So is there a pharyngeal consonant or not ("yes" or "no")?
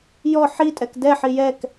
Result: yes